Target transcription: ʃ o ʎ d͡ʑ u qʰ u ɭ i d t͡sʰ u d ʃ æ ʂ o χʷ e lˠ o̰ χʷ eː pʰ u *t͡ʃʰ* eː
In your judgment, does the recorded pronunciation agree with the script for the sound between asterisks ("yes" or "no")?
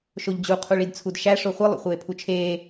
yes